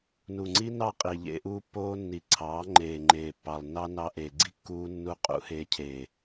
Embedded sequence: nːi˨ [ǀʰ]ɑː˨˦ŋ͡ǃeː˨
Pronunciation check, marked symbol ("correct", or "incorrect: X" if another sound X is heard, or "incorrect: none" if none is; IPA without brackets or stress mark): correct